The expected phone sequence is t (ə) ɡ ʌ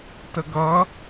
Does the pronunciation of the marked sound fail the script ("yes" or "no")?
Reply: no